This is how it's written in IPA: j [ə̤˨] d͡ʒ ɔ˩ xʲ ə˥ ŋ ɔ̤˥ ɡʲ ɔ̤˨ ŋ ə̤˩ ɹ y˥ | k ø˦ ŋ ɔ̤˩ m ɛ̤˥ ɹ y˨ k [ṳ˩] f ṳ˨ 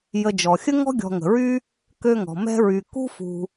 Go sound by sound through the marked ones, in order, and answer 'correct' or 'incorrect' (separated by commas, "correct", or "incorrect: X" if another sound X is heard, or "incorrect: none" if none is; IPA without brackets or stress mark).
incorrect: ə˨, incorrect: ṳ˥